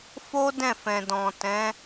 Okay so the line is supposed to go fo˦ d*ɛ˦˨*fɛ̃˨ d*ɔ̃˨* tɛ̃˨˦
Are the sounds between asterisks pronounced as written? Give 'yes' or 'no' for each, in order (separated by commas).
no, yes